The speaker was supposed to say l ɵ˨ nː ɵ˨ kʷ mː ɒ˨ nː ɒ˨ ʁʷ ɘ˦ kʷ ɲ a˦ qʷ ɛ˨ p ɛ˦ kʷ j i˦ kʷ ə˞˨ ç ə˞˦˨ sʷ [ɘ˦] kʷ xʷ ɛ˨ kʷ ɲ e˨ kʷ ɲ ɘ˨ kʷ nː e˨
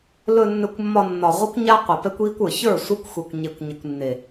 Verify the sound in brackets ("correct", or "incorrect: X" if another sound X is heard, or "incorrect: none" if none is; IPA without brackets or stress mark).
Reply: incorrect: ɛ˦